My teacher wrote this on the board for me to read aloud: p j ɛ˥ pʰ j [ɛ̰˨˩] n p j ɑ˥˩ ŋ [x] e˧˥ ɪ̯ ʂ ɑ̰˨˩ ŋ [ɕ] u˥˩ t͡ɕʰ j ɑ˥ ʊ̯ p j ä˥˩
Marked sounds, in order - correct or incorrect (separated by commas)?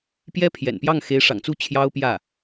correct, correct, incorrect